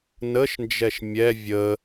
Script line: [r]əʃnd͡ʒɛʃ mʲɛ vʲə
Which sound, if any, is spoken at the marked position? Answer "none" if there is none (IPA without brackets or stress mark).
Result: n